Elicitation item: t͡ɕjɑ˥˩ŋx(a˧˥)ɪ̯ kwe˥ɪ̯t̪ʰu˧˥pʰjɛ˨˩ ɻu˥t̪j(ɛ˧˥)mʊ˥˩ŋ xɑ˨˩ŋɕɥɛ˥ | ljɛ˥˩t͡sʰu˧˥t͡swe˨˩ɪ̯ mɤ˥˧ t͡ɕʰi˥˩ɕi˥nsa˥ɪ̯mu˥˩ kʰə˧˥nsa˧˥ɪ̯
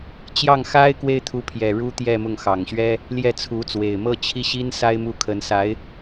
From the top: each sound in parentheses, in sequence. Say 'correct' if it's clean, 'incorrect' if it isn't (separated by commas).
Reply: incorrect, incorrect